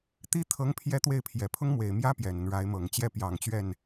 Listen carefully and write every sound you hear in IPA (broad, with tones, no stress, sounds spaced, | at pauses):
t̪ i˥ t̪ʰ ɤ˧˥ ŋ pʰ j ɛ˥ t̪ w e˥˩ ɪ̯ pʰ j ɛ˨˩ pʰ ʊ˥ ŋ m w e˨˩ ɪ̯ m j ä˥ p j ɛ˨˩ n ə˦ n ɻ a˧˥ ɪ̯ m ɤ˨˩ ŋ t͡ɕ j ɛ˥˩ p j ɑ˨˩ ŋ t͡ɕ ɥ ɛ˥˩ n